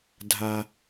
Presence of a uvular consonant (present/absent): absent